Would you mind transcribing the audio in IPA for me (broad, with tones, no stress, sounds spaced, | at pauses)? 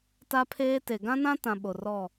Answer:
t a˦ pʰ eː˦ t e˨ ɡ ã˦ n ã˦ t ã˨ ɓ o˨ r ɔ˦˨